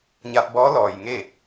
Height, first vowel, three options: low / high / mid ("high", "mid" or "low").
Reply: low